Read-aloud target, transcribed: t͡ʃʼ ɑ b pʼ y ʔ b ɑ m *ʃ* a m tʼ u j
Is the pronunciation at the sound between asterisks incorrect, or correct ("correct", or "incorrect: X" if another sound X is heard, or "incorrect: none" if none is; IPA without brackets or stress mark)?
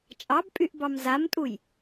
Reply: incorrect: z